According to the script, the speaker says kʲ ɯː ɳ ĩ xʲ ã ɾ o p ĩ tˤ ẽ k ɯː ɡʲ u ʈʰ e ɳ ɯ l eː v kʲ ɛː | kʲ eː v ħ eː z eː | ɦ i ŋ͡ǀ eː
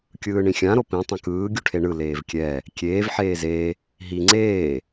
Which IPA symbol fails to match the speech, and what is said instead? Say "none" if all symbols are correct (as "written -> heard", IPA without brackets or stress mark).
none